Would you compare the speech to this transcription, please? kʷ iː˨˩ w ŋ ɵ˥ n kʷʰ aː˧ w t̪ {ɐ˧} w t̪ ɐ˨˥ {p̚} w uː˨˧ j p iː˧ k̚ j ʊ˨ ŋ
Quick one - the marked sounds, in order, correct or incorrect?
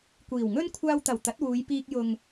incorrect, incorrect

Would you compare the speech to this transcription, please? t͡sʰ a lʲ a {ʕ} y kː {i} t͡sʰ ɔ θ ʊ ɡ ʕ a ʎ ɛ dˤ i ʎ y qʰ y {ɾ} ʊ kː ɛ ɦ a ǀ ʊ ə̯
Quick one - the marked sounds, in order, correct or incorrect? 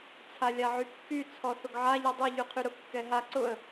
correct, incorrect, correct

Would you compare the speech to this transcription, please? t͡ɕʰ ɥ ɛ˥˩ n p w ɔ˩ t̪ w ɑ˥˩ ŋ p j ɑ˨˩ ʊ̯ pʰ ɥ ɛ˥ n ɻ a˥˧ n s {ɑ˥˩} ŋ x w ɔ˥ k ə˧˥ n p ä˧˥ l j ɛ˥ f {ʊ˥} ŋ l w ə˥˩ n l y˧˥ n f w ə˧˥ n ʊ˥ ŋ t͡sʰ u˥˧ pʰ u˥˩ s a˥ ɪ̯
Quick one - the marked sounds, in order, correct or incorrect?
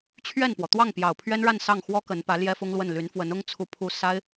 correct, correct

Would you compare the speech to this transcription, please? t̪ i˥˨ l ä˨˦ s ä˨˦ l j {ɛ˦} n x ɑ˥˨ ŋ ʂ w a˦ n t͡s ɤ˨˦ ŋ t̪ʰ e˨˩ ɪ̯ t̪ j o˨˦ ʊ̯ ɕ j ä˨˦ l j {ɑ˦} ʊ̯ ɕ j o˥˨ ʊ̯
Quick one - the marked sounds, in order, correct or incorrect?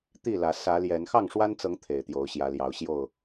incorrect, incorrect

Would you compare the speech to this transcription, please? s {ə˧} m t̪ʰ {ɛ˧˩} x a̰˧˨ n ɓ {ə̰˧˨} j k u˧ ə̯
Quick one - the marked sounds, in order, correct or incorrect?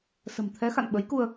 incorrect, incorrect, incorrect

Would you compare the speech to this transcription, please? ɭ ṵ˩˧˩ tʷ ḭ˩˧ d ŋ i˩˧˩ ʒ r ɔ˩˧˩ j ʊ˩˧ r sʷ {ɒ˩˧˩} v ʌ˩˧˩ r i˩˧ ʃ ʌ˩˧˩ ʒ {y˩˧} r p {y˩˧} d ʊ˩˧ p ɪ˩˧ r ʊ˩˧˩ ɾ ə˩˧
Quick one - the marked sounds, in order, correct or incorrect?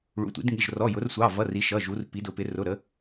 incorrect, incorrect, incorrect

